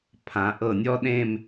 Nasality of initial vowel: nasal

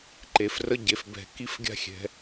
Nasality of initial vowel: oral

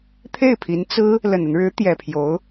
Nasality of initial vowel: oral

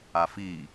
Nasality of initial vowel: oral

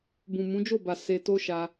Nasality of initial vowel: nasal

